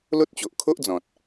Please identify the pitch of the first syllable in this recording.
high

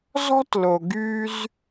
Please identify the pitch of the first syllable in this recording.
high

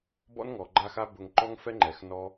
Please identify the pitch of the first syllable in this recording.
high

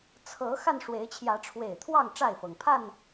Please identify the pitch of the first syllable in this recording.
rising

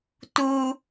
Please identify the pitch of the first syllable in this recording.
high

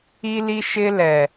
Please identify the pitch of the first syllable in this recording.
high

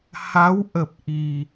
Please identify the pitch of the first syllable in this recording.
rising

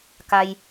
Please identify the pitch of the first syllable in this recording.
high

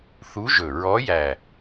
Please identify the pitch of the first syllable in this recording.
rising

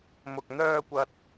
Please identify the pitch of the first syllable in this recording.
low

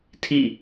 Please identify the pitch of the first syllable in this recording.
falling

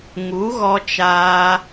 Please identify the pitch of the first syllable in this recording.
rising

